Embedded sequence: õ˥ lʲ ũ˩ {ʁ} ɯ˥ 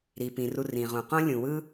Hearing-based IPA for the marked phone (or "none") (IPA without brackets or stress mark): w